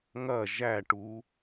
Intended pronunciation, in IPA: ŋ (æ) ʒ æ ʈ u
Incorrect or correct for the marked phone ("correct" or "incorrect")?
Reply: incorrect